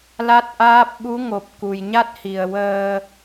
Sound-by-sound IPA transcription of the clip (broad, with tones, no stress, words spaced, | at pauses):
la˦˥t̚ʔaː˦˥p̚ ɓu˧˥ŋo˨˩p̚ ku˨˩jɲa˦˥t̚hi˨˩ə̯ wəː˧